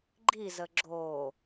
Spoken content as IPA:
ɡ͡ǃizə ɡ͡ǁo

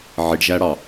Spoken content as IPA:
ʕiɖʒæɽɑ

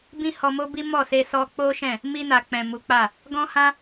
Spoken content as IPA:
bĩ˦hɔ˧mo˦bi˦ mɔ˦˨se˧sɔ˧ k͡po˦ʃɛ̃˦˨ | mi˧na˨ k͡pɛ̃˨ mu˨˦k͡pa˦˨ | ɡɔ̃˦hã˦

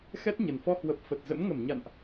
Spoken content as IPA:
xɛ˦˥t̚ɲə˨˩nfɔ˧ hwə˨˩p̚ fə˨˩t̚zə̰˧˥m ŋə˧˩mɲa̰˧˨nʔ

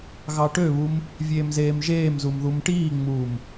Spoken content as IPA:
ɣɑʈøβum | vʲeːmzeːmʒeːmzum ðumʈiːŋ͡muːm

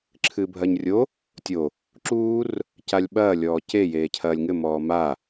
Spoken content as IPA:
ǁʰɨːbʱɐːɲrʲo | tʲo | ǁuːr | calʲɓɐː lʲɔːce jeːcʰɐːlʲŋɘ mɔːma

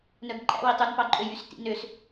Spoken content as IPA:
nœɡǃʼæ̰ witˤøn pɑǃʼøjys tḭnøs

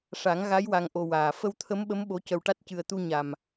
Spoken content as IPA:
ʂa˨˩˦ŋ ɣa˧˥j wa˧ŋʔo˧waː˨˩ fə˧wt̪ʰə˧˥mɓə˧˥m ɓo˧˥ cə˧wʈa˦˥t̚cɨ˧ə̯ t̪u˧ ɲa˨˩m

